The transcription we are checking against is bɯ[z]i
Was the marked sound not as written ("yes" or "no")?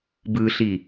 yes